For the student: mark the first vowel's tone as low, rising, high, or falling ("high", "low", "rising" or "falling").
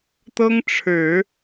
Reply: high